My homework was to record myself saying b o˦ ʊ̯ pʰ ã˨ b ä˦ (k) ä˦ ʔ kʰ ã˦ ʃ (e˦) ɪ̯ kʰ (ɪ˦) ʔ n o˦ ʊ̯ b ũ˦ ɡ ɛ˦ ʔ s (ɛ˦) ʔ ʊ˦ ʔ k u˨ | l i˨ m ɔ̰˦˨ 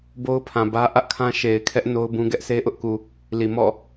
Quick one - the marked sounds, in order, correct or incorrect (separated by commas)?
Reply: incorrect, incorrect, incorrect, incorrect